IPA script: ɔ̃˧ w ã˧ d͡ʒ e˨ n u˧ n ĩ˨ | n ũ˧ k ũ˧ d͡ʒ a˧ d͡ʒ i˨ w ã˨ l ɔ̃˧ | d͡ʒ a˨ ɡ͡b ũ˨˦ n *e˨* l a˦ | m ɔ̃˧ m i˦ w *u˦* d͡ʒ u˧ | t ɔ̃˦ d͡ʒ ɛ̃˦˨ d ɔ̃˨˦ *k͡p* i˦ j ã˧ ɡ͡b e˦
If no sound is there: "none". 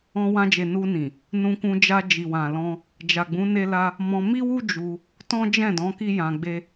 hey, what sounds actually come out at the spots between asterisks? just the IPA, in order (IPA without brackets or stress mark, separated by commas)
e˦, u˦, k